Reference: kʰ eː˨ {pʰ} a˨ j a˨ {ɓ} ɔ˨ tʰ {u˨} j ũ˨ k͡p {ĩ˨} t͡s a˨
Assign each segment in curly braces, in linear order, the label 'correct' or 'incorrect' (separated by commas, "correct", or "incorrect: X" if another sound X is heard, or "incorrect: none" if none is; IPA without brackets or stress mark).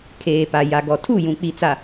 incorrect: p, incorrect: ɡ, incorrect: u˦˨, incorrect: i˨